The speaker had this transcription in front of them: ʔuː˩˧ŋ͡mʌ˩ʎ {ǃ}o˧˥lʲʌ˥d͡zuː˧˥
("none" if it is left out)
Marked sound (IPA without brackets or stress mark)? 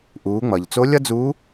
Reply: t͡s